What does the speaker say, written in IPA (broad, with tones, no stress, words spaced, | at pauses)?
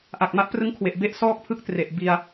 ʔa˨˩k̚ma˦˥ʔprɯ˦˥ŋkʰwe˨˩ʔ be˦˥ʔsɔː˥˩k̚pʰɯ˦˥k̚tre˨˩ʔ bi˧a̯